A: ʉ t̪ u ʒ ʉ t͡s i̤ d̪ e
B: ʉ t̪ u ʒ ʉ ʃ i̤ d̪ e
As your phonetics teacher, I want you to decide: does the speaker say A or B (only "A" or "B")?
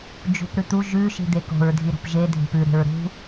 B